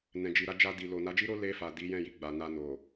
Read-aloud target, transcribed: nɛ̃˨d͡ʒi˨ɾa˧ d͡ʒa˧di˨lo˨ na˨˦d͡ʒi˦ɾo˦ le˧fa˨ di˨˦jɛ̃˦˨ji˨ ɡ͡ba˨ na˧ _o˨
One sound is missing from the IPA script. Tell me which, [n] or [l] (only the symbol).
n